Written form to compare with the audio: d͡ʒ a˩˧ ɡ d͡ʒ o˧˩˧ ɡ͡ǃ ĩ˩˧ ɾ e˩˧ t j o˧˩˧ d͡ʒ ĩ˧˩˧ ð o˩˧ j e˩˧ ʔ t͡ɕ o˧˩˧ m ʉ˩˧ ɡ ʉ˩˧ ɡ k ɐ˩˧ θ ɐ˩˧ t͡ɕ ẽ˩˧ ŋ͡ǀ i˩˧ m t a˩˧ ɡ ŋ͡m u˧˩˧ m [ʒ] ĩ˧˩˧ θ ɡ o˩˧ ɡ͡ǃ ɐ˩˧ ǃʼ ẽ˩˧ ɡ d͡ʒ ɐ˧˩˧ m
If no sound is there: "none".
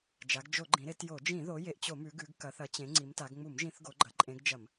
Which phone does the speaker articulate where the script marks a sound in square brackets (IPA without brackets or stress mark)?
ʒ